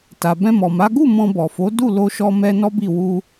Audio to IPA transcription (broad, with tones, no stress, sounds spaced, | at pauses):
t a˨ b ɛ̃˧ m ɔ˨ m a˨˦ ɡ u˦˨ m ɔ̃˧ b ɔ˨ f o˨˦ d u˦˨ l o˧ ʃ ɔ˧ m ɛ˧ n ɔ˦ b i˦˨ w u˧